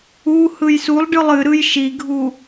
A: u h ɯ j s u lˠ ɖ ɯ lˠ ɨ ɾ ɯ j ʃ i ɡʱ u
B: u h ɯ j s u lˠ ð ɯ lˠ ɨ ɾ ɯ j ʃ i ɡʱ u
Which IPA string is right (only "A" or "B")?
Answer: A